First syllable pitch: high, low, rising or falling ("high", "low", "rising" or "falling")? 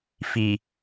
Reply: low